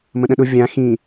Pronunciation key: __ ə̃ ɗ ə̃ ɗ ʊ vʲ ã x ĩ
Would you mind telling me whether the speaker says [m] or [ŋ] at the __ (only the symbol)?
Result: m